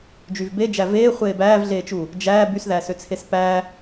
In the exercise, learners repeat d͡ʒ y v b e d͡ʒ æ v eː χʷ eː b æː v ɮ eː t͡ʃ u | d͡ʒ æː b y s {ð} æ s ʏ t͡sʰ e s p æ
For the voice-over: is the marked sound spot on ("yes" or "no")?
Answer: yes